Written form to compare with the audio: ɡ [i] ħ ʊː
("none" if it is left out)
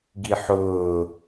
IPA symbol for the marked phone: i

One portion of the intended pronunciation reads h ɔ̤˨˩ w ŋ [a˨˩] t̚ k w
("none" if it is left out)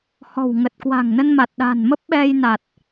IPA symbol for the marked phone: ə˨˩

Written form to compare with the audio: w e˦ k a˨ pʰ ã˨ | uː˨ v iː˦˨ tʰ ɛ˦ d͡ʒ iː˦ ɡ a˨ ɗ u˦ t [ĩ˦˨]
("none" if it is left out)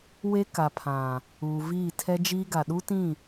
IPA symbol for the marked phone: ĩ˦˨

